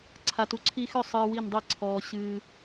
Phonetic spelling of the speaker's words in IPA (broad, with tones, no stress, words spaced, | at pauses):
ǀʰa˨tu˨ǀʰi˧xʏ˦˨ sˤɨː˧wi˦˨ndˤi˦˨ǀʰɔː˧ ɕɨː˧